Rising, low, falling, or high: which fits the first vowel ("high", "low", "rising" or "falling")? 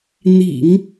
low